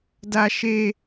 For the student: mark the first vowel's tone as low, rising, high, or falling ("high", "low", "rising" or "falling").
high